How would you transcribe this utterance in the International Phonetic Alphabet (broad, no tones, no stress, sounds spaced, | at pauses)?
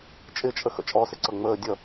t͡ʃʼ ɪ t͡ʃʼ ə x ə̰ t͡ʃʼ ɔ s ɪ ǀ ʌ ŋ͡m əː dʲ ʌ